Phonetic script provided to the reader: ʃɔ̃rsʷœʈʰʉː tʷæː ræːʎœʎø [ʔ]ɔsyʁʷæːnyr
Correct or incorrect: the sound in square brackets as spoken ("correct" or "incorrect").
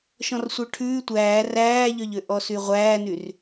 correct